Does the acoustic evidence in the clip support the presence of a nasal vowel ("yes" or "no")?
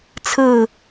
no